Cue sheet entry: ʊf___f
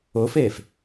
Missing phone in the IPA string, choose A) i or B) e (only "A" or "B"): B